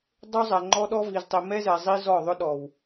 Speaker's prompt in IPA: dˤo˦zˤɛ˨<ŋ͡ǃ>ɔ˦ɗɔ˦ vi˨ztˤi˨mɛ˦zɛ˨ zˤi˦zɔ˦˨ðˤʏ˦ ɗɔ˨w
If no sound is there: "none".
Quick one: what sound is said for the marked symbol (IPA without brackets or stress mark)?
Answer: ŋ͡ǃ